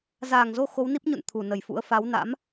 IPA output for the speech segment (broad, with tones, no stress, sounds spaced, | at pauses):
z aː˧˩ ŋ z o˧ x o˨˦ w n i˦˥ p̚ ɲ ṵ˧˨ n t̪ʰ u˧˩ n ə˧˩ j f ṵ˧˥ ə̯ f a˨˦ w n a̰˧˥ m